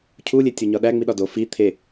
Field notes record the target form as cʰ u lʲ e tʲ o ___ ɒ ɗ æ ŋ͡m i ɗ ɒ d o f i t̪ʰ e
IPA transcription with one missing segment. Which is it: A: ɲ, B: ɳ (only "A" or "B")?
A